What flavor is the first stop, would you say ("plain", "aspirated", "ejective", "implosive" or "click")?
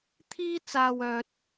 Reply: aspirated